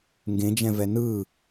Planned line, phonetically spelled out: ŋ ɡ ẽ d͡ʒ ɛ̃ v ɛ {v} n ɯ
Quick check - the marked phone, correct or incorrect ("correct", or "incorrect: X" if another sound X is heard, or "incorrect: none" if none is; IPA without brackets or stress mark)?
incorrect: none